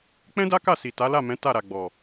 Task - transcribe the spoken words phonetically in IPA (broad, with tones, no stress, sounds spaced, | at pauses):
k͡p ɛ̃˦ d a˦ k a˦˨ s i˨ t a˨˦ l a˦˨ m ɛ̃˨˦ t a˦˨ ɾ a˨ ɡ͡b ɔ˨